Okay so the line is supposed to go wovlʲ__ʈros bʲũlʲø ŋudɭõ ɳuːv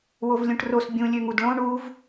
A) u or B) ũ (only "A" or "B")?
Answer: B